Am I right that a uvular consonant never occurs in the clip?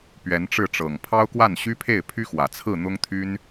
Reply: yes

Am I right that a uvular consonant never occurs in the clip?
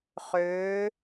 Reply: no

